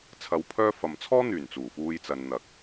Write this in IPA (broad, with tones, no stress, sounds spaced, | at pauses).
t͡sʰ ɐ˧ w pʰ œː˥ f ɐ˨ m t͡sʰ ɔː˥ n̪ yː˨˩ n t͡s uː˨˩ f uː˧ j t͡s ɐ˨ n n̪ ɐ˨ k̚